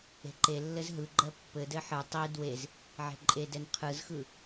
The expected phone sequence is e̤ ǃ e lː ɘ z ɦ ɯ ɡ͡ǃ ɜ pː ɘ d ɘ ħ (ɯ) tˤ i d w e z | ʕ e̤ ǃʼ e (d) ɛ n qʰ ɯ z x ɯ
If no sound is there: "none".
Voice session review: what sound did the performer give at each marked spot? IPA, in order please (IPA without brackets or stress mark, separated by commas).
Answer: ɯ, d